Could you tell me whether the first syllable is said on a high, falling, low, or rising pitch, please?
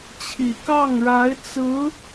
low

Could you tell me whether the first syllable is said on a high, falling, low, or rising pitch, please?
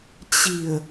low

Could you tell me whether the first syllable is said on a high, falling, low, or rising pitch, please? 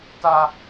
high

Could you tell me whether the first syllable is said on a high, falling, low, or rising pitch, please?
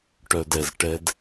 low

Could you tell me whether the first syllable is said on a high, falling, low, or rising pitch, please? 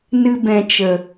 high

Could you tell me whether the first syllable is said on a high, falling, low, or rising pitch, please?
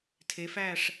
rising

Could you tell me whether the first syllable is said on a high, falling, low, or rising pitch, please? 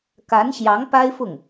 rising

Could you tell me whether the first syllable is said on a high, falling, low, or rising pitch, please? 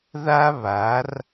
high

